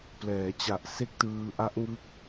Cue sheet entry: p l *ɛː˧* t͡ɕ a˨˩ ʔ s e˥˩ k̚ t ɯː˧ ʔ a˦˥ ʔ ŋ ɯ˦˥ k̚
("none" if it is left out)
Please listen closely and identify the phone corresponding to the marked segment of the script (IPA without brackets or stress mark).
ɛː˩˦